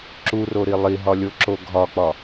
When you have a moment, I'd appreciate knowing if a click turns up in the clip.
yes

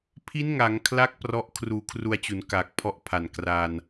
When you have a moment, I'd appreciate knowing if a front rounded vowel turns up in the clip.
no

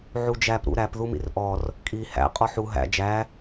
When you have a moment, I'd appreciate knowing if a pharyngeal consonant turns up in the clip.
yes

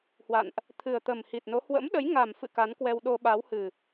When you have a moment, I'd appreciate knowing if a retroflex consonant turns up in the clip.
no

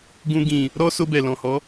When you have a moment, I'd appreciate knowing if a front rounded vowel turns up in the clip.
no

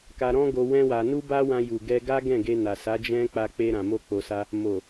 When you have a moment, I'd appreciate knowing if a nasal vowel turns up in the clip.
yes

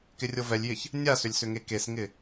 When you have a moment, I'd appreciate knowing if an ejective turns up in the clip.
no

